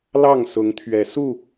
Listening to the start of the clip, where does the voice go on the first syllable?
falling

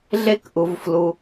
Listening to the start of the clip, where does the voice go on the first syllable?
high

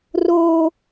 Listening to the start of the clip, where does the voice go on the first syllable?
high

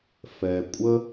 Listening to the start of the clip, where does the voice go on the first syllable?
low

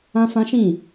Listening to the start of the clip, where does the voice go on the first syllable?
high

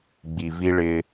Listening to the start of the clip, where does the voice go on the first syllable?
low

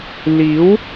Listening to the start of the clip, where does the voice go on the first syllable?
rising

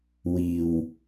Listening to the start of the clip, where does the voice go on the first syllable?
low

